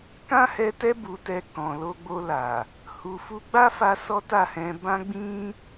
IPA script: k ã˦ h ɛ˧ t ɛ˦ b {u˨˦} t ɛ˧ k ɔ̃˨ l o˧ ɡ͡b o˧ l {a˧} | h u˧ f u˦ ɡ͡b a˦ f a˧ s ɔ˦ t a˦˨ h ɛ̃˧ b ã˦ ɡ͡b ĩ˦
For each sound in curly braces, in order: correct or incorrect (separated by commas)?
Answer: incorrect, incorrect